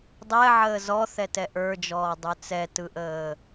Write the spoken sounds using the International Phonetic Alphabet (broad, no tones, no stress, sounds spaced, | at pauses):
dˤ ɛ ʕ əː z ɔ θ ɛ t ɛ ʔ ə˞ d͡ʒ ɔː dˤ ə˞ t͡s ɛ t ɯ ʔ əː